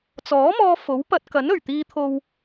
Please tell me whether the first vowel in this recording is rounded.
yes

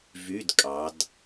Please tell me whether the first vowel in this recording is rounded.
yes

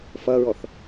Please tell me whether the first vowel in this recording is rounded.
no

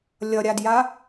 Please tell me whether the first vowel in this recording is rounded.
no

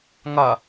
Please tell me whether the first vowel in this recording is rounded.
no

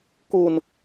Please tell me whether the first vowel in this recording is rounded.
yes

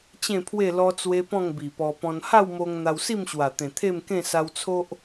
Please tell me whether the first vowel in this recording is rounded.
no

